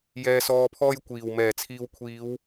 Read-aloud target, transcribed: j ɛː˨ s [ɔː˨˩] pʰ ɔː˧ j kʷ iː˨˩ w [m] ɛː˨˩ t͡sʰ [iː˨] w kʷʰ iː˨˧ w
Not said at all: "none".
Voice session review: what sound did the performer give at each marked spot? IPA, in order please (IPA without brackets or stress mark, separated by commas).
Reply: ɔː˨, m, iː˨